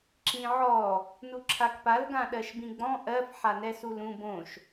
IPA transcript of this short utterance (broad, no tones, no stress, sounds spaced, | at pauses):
ǁ ĩ ʕ ɔ | n u ǁʰ a k p a l ɡ ã ɗ ɜ ʃ b ĩ ɡ͡b ɔ̃ ʔ ɜ f ħ a n ɛ s u l ũ b õ ʃ